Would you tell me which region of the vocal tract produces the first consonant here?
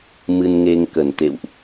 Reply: lips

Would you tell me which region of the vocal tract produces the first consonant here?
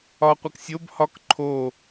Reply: uvula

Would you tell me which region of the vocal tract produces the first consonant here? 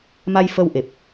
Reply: lips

